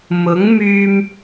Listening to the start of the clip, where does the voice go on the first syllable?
rising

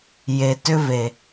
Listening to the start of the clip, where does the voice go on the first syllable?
low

